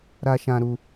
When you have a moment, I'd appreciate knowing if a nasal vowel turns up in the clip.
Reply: yes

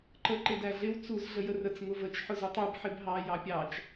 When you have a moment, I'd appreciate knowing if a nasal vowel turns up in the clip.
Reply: no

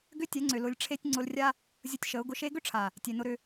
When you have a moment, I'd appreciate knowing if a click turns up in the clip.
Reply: yes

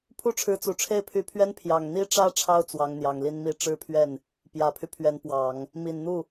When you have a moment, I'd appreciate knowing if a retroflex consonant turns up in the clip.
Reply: yes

